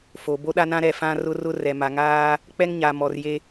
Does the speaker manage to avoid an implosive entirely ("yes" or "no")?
no